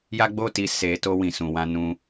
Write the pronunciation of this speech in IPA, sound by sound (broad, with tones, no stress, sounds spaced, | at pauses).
j a˦ ɡ͡b o˦ t i˧ s e˧ t o˦ w ĩ˦˨ s ũ˧ w ã˦ n ũ˧